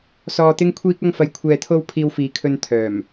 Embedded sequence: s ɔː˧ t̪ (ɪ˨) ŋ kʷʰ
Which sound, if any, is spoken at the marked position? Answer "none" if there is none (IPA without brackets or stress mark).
ɪ˥